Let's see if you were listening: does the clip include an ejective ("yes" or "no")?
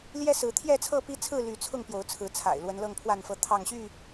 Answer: no